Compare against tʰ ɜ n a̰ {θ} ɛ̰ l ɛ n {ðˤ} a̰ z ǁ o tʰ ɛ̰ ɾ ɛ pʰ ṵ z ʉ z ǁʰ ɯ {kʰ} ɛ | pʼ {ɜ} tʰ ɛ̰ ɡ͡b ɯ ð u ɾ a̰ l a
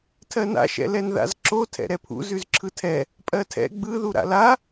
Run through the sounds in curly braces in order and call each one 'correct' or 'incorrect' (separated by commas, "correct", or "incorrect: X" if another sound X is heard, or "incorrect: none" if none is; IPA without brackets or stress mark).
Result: incorrect: ʃ, incorrect: ð, incorrect: tʰ, correct